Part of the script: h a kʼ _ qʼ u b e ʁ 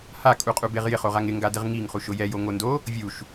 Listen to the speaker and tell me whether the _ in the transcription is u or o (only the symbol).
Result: u